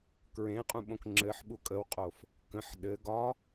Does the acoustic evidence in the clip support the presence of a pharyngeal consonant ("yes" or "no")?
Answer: yes